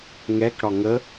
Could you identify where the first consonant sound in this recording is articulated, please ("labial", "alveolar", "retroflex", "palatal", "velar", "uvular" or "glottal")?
velar